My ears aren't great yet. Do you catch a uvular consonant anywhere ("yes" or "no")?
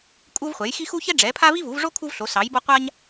yes